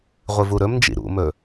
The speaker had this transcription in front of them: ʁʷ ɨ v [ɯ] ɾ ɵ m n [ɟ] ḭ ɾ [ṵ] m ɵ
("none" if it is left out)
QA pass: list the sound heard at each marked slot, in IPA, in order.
u, d͡ʒ, ṵ

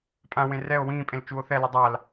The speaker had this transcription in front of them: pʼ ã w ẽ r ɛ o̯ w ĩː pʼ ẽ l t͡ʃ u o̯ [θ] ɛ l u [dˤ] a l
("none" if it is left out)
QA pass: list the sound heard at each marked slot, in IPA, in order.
θ, dˤ

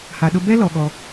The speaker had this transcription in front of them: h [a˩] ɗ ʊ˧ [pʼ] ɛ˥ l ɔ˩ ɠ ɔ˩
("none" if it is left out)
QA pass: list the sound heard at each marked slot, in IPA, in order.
a˩, b

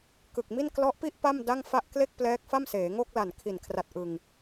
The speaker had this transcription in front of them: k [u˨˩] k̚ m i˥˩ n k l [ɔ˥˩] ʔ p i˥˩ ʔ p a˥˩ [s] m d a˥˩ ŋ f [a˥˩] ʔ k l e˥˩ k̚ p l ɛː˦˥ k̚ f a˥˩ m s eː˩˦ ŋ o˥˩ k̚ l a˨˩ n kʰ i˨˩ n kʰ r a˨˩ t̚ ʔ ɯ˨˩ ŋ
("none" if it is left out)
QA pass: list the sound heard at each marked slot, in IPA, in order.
ɯ˨˩, ɔ˦˥, none, a˥˩

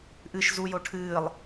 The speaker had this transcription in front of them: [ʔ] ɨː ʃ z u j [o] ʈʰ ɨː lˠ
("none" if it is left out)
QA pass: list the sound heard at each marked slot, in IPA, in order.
ʔ, o

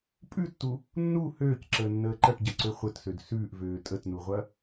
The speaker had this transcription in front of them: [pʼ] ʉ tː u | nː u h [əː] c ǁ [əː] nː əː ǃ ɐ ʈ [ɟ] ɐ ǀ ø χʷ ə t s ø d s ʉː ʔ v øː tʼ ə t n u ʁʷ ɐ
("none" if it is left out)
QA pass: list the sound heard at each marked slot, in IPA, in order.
pʼ, øː, əː, ɟ

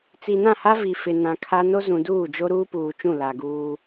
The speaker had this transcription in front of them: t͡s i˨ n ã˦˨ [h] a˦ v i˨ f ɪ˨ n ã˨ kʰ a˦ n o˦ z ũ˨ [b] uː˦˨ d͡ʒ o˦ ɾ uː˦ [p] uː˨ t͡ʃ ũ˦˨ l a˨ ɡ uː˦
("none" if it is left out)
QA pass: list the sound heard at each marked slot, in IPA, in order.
h, d, p

